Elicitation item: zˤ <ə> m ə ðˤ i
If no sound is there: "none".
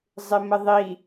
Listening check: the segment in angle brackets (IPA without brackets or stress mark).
ɪ